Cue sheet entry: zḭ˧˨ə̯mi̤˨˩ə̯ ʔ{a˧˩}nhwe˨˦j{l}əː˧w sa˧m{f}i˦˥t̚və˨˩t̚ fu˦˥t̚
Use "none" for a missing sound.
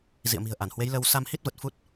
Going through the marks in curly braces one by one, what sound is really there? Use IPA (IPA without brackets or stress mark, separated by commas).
a˧˩, l, h